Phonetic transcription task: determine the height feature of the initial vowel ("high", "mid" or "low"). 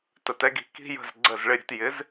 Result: mid